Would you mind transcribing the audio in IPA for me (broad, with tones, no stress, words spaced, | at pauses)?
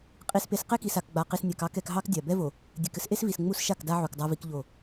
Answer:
qʼi˨spe˨s qe˦ki˨sa˨kɡ͡ba˨ qi˨snʲa˨kɑ˦kɛ˨k ɦɑ˦kdʲa˨ bɛ˦vo˨ | dʲɛ˨kɘ˦sʔe˦svi˨s ŋ͡mu˦sʃa˦˨kda˦ ʕu˨kdˤa˦vi˦kʎo˦˨